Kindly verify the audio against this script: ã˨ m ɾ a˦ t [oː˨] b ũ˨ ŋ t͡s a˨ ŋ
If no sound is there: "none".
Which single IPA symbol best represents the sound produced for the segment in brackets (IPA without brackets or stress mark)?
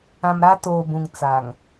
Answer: oː˨